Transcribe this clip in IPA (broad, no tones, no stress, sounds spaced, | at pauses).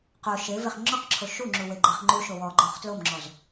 q o ʃ e v e χ ŋ͡ǁ ɔ q ǁʰ o ʃ u ŋ͡ǁ u w e ɡ͡ǃ e χ ŋ͡ǃ u ʃ o w ɔ ɡ͡ǃ ɔ χ t l o m ŋ͡ǁ ɔ z